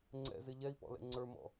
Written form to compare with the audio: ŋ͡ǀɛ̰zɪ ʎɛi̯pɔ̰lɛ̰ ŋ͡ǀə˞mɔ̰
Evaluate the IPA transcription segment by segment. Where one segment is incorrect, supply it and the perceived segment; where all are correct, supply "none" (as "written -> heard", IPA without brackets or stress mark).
none